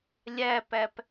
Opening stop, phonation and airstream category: plain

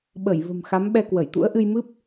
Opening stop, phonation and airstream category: implosive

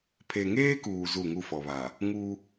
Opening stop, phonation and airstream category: aspirated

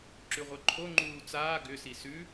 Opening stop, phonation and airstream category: click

